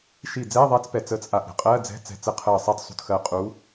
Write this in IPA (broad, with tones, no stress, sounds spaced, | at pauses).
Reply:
ʃ i˧˩ d͡z ɛː˧˥˧ ðˤ ɛ˧˥ t͡s p ɛ˧˩ t͡s əː˧ t͡s ʔ a˧˩ ʔ ɾ ɛ̤˧ qʼ ɜː˧˥˧ d͡z ɛ̤˧˥˧ t͡s ɛ̤˧˩ t͡s ə˧ qʰ əː˧˩ sˤ ɛ˧˥ t sˤ ṳ˧˩ t x ɜ˧˩ qʼ u˧˥